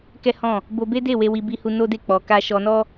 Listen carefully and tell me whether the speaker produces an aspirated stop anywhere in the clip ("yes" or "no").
no